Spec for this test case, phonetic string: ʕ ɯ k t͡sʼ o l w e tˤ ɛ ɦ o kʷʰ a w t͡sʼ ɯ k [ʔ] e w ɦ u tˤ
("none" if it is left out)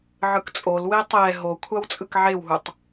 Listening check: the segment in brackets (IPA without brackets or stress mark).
ʕ